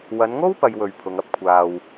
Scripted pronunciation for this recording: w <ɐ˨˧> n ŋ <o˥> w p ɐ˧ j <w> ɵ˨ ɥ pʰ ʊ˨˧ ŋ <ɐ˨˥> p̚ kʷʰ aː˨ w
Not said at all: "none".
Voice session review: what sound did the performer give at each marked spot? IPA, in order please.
ɐ˨˧, o˥, w, ɐ˧

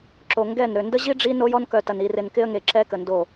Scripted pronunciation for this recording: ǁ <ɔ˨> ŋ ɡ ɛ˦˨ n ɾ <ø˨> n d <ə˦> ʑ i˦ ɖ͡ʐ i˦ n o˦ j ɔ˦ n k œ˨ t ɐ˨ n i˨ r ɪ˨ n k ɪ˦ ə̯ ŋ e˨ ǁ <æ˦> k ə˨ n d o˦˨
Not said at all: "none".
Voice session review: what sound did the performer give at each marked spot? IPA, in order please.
o˨, ø˨, ə˦, ɛ˦

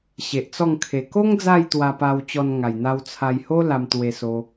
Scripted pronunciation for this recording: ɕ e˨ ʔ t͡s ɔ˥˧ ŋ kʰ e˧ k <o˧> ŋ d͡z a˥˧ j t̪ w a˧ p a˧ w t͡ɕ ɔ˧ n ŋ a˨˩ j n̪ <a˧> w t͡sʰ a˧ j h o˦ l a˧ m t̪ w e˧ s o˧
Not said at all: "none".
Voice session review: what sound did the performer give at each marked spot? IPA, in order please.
o˦, a˧

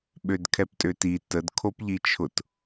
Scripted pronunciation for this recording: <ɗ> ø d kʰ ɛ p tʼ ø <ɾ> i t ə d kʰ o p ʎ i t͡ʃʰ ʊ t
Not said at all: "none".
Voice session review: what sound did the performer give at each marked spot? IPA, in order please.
ɓ, t

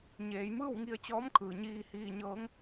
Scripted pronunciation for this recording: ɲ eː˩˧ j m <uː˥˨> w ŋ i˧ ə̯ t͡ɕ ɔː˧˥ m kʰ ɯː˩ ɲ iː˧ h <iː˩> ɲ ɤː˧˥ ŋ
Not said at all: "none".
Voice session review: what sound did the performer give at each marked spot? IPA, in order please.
ɯː˥˨, iː˧

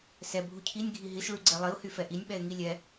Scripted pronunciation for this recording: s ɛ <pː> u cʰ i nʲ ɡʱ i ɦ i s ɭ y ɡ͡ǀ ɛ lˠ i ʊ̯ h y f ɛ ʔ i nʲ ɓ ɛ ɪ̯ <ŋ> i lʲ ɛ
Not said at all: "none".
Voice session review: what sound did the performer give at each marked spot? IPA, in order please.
bʱ, ŋ

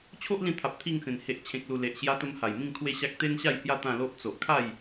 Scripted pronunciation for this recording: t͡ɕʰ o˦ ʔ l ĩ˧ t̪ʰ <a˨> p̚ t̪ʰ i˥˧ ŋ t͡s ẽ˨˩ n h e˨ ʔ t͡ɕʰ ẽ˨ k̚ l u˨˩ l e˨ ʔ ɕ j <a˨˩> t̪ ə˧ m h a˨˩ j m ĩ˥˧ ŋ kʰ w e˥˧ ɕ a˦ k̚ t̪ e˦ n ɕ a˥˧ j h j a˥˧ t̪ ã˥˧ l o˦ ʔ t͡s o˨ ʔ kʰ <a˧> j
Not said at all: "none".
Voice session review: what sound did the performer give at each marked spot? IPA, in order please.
a˨, a˧, a˥˧

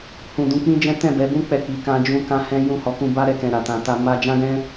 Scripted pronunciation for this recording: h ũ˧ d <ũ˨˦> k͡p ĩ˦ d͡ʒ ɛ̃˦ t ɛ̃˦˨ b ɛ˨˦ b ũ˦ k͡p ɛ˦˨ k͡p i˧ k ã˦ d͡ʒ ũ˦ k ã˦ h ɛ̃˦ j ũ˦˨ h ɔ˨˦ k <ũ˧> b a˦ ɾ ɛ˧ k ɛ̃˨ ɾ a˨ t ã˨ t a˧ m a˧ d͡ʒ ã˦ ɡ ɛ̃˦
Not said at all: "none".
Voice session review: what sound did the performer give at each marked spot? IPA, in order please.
ũ˧, ũ˧

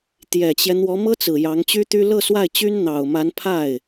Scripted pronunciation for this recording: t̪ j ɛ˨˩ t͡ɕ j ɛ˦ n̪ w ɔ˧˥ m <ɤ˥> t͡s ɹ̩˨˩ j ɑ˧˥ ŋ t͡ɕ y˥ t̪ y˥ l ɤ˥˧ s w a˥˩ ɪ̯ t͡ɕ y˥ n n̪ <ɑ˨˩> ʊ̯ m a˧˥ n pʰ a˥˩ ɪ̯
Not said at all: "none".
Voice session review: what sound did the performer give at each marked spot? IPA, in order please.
ɤ˥, ɑ˨˩

